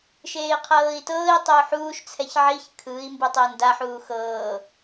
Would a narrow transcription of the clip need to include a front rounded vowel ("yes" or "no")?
no